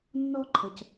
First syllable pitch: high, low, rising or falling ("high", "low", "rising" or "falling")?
high